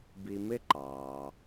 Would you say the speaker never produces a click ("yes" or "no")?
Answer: no